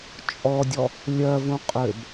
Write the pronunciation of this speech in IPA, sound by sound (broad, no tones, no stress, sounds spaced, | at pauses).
t͡ʃʼ ɔ dʲ ɔ | lʲ ɜ v ũ qʼ ø b